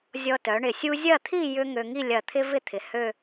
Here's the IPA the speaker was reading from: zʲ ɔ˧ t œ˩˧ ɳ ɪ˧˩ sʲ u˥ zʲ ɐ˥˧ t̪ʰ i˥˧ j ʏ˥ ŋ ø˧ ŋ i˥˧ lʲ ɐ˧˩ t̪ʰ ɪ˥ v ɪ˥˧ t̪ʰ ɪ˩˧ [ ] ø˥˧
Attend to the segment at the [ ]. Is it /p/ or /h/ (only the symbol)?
h